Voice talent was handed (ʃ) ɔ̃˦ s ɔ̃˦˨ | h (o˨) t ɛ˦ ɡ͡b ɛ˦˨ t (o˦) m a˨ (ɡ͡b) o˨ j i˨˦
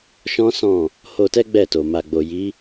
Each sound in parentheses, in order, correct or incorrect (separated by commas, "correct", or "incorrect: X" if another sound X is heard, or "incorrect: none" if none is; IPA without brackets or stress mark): correct, incorrect: o˧, incorrect: o˨, correct